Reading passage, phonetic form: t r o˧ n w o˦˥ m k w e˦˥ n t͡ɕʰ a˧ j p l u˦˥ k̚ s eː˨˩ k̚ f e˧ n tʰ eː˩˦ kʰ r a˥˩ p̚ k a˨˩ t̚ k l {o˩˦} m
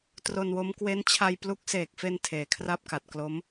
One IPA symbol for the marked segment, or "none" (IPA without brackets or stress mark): o˦˥